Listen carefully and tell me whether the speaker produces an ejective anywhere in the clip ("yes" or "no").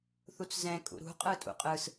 yes